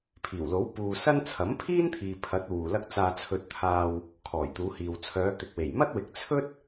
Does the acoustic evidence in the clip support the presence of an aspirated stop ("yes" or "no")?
yes